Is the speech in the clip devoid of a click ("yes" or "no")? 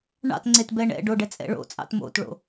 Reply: no